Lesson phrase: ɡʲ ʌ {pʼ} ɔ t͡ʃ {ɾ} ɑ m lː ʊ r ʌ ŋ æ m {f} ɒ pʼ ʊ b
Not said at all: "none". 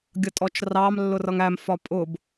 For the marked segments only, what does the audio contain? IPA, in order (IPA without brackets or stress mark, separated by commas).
tʼ, r, f